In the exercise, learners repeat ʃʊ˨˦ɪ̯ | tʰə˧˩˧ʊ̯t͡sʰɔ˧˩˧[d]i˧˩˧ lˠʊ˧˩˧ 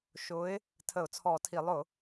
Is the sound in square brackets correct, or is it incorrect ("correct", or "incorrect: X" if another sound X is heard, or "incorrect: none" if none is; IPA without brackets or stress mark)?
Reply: incorrect: tʰ